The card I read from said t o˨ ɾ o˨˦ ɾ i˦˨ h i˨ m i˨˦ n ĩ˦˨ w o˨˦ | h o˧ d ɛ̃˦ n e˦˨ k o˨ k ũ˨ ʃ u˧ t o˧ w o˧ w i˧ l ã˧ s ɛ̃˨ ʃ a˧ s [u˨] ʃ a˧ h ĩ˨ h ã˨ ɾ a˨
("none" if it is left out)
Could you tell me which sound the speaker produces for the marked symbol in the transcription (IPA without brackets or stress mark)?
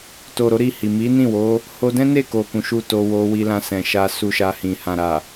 u˧